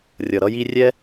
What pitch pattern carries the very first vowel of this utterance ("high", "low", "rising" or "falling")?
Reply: low